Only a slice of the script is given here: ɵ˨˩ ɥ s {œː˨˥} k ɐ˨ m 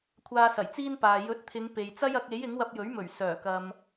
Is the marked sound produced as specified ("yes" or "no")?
no